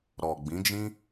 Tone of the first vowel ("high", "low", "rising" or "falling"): low